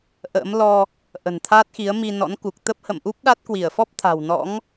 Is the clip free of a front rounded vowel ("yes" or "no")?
yes